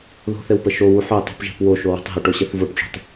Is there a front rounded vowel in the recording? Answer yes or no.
no